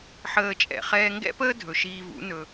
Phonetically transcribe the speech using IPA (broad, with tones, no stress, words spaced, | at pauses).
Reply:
ħəː˧t͡ʃʼɛ̰˩ χɛː˧ŋɡɛ̰˥pəː˥ dʱɵ˩ʃiː˧vṵ˩˥ nɵ˩